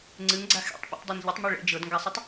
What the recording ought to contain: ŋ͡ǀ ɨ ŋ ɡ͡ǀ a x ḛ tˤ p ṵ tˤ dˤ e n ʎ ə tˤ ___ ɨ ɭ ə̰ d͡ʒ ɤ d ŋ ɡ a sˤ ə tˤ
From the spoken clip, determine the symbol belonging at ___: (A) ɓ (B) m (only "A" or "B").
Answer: B